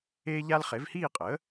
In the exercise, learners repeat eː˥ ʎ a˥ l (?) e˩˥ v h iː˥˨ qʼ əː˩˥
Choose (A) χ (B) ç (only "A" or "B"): A